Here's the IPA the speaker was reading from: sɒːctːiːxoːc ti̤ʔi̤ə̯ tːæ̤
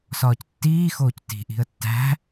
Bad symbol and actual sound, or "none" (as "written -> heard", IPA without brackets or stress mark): none